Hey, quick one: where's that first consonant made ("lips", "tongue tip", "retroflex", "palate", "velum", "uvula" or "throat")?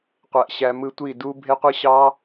uvula